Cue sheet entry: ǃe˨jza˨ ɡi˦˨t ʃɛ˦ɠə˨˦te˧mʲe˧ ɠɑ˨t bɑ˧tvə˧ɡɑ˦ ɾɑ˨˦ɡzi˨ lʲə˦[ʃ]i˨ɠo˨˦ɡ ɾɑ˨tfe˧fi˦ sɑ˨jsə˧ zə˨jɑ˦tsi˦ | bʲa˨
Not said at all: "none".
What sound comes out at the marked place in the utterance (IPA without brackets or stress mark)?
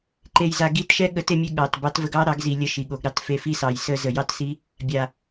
ʃ